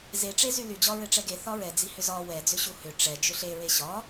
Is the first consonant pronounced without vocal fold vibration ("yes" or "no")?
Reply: no